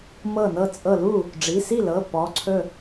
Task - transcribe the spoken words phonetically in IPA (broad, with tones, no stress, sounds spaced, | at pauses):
m ɤ˥˩ n ɤ˥˩ t͡sʼ ɤ˥˩ l u˥˩ | ɖ͡ʐ i˩˧˩ s i˥˩ l ɤ˩˧˩ p ɔ˩˧˩ ǀʰ ɵ˥˩